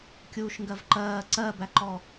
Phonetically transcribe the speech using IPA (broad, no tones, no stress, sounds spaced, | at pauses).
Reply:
kʲ uː ʃ ŋ ɡ ɜ v ǃ ɜː ǀ ɜ b æ ǃ ɔ